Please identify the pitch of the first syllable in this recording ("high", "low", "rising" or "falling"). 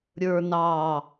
low